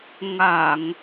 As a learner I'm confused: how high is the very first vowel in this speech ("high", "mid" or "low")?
low